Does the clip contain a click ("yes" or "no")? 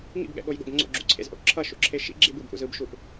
yes